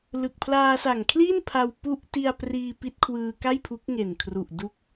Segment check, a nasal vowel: absent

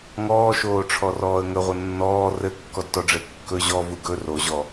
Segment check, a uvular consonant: present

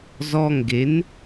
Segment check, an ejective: absent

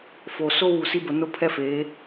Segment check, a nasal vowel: absent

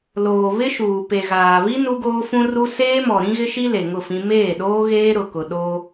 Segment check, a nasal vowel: present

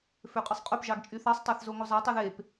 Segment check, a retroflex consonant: absent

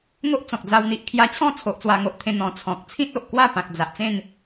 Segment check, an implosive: absent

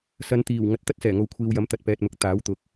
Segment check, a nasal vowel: absent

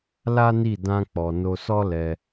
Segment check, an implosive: absent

